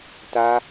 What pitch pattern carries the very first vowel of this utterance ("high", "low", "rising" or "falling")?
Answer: high